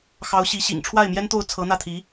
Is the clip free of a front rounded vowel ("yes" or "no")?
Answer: yes